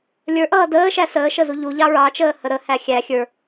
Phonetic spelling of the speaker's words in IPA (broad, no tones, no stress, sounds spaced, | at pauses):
lʲ ə˞ ʔ ʌː d əː ʃ æ s əː ʃ ə z u ʎ u ʎ ɑ ɹ ɑ t͡ʃ əː h ə ɾ ə h æ xʲ æ xʲ ə˞